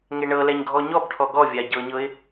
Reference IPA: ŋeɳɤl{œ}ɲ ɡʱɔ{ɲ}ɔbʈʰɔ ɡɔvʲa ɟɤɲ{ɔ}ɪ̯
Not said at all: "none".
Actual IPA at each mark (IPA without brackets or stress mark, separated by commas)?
ɛ, ɲ, ɤ